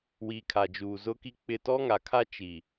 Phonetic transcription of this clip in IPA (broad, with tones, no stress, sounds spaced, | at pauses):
w i˦ kʰ a˨ d͡ʒ uː˨ z ʊ˦ k i˦ k͡p ɪ˦˨ t ɔ˦ ŋ a˨ kʰ a˦ t͡ʃ i˨